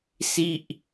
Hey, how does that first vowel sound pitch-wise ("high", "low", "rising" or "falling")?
falling